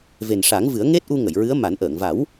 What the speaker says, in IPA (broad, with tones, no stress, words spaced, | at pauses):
ve˨˩nʂa˨˩˦ŋvɨ˨˩˦ə̯ ŋe˦˥t̚ʔu˧ŋə˨˩˨j ɹɨ˧˥ə̯ma˨˩˦nʔəː˨˩˨ŋ va˨˩˦w